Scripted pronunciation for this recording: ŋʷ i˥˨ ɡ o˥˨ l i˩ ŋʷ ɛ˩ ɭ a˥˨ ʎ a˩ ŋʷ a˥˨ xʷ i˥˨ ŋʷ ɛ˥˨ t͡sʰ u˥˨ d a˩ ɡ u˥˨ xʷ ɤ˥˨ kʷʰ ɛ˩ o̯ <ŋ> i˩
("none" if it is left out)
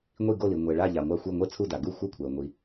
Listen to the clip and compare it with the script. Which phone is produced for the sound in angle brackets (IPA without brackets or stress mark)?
ŋʷ